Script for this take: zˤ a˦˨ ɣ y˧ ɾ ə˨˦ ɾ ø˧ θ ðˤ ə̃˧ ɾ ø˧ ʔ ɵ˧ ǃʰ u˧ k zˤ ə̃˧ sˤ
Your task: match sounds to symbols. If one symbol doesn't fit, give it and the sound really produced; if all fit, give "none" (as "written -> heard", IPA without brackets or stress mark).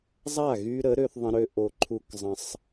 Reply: ɵ˧ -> o˧